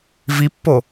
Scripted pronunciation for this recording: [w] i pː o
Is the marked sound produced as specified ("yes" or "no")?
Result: no